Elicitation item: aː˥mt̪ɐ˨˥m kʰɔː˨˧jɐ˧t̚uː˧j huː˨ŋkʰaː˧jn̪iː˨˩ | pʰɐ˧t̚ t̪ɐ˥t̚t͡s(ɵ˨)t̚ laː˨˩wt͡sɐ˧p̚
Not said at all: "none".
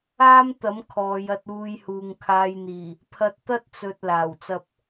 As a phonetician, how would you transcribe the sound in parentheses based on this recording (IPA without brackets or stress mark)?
ɵ˨